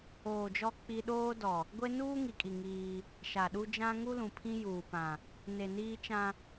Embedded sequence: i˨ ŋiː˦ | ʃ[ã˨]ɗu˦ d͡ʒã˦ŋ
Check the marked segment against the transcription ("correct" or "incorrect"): incorrect